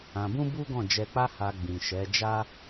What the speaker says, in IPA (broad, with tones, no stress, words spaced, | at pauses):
ã˧bũ˦bu˦ɡɔ̃˦˨ d͡ʒɛ˧k͡pa˦ ha˧ɡ͡bĩ˨ ʃɛ˨˦d͡ʒa˦